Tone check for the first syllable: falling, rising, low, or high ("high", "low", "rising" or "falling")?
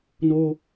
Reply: high